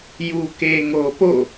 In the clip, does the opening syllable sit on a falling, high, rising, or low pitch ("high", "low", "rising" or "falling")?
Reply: low